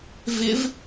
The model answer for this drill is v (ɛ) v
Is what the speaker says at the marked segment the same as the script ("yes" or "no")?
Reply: no